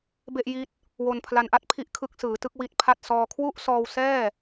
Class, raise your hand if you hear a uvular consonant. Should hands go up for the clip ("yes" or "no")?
no